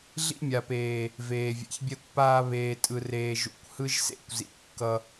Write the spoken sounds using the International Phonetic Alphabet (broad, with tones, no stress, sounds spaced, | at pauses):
ɮ ḭ˦ mʲ a˨ p eː˨ | v eː˨ vʲ ɛ̰˨ ç bʲ ɛ˦ kʷ p aː˦ β eː˨ tʼ ɯ˨ r eː˨ ʒ ṵ˨ kʷ h ɯ˦ ʒ s ḛ˦ kʷ z ḭ˨ kː ʌ˦